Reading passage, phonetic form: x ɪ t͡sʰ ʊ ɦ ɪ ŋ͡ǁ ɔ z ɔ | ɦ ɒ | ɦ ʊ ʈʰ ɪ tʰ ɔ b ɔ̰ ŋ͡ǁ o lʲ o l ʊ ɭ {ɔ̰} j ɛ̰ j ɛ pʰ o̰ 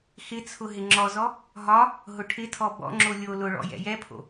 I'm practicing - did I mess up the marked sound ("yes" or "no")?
no